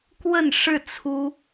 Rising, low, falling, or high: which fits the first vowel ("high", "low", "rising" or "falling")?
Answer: falling